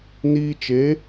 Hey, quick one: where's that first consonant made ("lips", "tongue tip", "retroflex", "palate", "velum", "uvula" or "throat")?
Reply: tongue tip